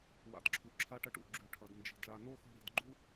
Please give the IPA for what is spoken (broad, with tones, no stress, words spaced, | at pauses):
wa̰˨dǁʰu˩ǁʰa˦ʈɐ˦ʈ ṵ˩ ɡ͡ǁʉ˩ʈʰɐ˩d nd͡ʒi̤˩dɭa˨ no˥xo̤˦ɽi̤˨d ɡ͡ǃu˥